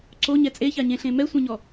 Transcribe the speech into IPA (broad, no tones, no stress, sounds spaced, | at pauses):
ǀ o ɲ ɛ t͡sʼ e ç a ɲ ẽ ɬ ẽ m ɛ sʷ ẽ ɲ ɔ